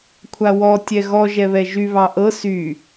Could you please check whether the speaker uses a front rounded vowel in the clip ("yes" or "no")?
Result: yes